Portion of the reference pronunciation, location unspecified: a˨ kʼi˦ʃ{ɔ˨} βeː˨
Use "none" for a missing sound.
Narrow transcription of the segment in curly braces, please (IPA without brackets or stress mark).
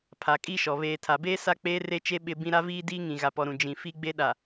ɔ˨